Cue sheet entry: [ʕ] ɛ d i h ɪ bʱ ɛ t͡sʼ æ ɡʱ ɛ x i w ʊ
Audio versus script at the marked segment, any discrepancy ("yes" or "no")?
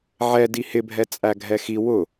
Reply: no